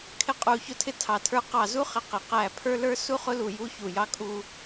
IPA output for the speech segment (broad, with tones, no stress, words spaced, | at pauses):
kʰɪ˥qʼu˦˨çʊ˥ tʰɪ˥tʰɑ˦˨tʰə˞˥ qɑ˦˨zu˥ χɪ˥qɪ˦˨ qæ˦˨pʰə˞˥lə˞˥ su˥χʊ˥lu˦˨ ju˥ çu˦˨ jɑ˥kʼu˥